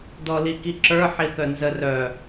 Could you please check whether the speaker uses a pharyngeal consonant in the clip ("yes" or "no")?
yes